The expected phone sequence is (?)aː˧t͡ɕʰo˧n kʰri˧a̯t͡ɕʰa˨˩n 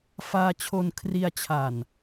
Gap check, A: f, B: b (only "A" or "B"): A